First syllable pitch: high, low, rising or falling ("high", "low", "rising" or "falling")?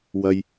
high